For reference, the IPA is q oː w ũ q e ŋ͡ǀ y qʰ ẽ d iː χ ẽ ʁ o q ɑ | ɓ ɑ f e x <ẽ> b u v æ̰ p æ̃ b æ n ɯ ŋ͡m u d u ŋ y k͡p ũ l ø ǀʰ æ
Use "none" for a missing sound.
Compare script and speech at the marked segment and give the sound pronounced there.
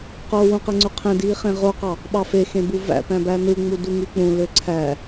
ẽ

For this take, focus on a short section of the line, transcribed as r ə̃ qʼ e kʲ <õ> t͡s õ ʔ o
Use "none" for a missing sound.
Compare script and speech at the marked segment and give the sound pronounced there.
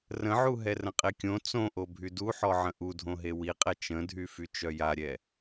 õ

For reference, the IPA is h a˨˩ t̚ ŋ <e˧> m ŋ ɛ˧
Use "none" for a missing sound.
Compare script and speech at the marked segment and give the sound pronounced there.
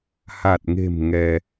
e̤˨˩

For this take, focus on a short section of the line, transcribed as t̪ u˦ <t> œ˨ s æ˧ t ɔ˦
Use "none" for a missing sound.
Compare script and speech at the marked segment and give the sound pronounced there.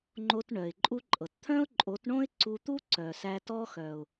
ǀ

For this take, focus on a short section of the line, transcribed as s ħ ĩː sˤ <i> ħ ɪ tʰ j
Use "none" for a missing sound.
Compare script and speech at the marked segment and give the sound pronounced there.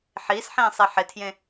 i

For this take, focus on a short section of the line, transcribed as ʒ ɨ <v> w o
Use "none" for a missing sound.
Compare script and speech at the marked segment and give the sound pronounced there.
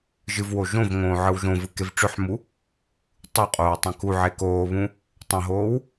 v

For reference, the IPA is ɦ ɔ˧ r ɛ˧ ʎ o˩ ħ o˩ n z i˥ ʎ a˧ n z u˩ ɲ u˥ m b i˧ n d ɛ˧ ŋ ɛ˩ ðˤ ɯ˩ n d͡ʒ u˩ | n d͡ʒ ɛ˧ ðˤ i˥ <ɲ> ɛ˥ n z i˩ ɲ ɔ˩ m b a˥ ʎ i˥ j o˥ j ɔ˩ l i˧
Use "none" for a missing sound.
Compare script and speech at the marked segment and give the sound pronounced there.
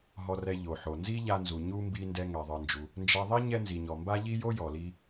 ɲ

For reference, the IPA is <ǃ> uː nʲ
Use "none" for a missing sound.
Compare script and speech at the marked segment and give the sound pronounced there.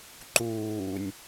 ǃ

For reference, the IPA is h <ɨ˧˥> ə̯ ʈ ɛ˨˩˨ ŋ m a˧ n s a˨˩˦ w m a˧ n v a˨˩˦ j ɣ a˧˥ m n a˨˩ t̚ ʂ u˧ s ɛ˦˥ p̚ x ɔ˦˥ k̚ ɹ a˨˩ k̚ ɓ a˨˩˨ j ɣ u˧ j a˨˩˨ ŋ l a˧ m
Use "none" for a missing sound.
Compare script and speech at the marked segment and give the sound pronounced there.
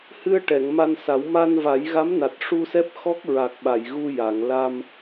ɨ˧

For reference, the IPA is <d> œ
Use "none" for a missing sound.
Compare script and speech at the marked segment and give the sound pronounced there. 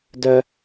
d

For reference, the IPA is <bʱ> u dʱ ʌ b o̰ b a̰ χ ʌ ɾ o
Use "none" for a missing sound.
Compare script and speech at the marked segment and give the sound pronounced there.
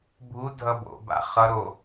bʱ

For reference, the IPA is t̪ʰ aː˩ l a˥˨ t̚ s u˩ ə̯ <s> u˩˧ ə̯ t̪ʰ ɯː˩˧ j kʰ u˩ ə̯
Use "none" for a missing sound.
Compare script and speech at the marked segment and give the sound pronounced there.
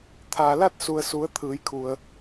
s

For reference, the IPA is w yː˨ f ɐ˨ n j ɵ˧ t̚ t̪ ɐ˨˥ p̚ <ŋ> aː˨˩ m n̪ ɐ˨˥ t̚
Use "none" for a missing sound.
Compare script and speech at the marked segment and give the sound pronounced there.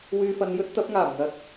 ŋ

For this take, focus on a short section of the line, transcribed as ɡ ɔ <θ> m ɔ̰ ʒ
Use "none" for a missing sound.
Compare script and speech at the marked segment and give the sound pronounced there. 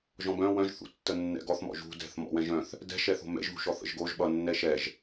θ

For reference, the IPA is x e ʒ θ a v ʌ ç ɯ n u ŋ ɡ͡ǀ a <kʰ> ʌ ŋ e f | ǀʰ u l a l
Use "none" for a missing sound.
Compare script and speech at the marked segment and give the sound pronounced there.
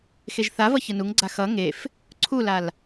x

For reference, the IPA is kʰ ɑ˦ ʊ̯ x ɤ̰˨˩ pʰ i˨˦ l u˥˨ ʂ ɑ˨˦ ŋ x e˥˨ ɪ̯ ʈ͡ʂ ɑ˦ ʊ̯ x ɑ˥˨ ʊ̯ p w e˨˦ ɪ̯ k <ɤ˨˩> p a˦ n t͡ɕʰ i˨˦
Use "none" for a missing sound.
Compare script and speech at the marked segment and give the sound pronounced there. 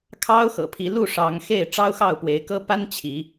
ɤ˦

